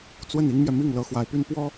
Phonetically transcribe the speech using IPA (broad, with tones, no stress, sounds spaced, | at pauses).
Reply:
t͡s w ə˥˩ n i˥ ŋ m j ɛ˨ m i˥˩ ŋ l ɤ˧˥ x w a˧˥ ɪ̯ p y˥ n p w ɔ˥